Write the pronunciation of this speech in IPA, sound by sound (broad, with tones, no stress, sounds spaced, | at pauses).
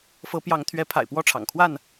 f ɤ˨˦ p j ɑ˨˦ ŋ t̪ʰ ɥ ɛ˨˦ pʰ a̰˨˩ ɪ̯ p w ɔ˥˨ ʈ͡ʂʰ ɑ̰˨˩ ŋ kʰ w a˥˨ n